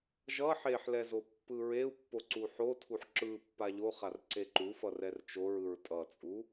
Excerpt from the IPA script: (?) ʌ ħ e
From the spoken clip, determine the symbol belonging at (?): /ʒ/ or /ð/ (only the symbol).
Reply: ʒ